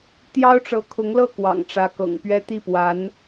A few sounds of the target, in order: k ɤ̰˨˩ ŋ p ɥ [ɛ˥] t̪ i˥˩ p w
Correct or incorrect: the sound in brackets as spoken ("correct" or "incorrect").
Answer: correct